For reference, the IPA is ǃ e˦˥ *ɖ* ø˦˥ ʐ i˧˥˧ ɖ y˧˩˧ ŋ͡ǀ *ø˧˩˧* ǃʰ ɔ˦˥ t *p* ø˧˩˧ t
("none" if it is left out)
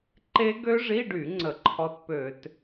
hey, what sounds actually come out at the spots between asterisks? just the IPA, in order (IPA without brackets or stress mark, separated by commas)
ɡ, ə˧˩˧, p